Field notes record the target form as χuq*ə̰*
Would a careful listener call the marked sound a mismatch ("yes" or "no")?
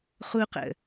no